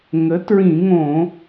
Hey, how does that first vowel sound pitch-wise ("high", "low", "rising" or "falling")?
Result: rising